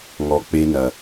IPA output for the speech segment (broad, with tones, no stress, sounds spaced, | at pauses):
ŋ ɔ˨ k͡p e˦ n ɐ˨